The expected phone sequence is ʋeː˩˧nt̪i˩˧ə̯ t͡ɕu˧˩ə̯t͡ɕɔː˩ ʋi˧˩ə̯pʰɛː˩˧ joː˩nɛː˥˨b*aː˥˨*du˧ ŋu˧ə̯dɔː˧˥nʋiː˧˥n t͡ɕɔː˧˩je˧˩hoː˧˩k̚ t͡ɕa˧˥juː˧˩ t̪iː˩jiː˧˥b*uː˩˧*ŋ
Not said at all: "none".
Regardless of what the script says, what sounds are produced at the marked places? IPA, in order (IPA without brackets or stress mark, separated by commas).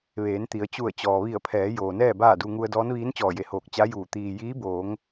aː˥˨, oː˩˧